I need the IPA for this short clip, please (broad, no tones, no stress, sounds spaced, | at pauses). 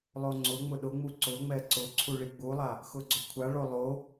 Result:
lˠ o ŋ͡ǀ ʊ ŋ͡m ʊ ɗ ʊ ŋ͡m u ǀ ʊ ŋ͡m ɛ ǀ ʊ ǀʰ u ɭ i ɡ͡b u lˠ a | x ʊ ɡ͡ǀ ʊ kʷʰ a ɭ o lˠ o